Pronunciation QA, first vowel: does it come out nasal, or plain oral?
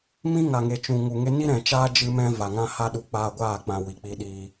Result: nasal